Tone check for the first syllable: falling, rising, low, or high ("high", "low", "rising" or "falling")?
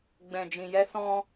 low